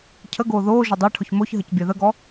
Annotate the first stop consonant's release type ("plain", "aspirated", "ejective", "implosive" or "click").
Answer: aspirated